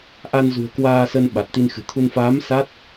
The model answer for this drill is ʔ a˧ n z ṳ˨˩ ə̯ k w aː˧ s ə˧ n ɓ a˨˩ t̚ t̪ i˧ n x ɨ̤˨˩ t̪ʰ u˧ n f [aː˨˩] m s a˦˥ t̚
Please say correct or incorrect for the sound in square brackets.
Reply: incorrect